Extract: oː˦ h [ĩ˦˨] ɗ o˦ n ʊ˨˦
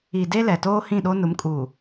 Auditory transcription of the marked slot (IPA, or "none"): ĩ˦˨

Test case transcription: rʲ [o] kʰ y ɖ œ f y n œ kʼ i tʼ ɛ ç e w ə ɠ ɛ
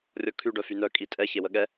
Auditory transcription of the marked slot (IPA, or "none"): ɔ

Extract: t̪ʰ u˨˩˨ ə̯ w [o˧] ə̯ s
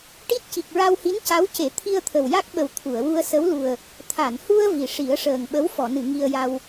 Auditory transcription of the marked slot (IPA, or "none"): u˧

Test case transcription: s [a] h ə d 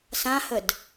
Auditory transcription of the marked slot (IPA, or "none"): ã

